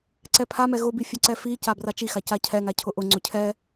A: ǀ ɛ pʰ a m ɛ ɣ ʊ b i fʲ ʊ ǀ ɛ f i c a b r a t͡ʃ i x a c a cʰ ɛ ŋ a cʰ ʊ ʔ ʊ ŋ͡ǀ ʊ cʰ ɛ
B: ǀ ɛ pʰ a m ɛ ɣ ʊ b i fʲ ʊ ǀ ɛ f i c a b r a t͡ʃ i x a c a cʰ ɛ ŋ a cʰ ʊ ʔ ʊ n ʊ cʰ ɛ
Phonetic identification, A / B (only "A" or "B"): A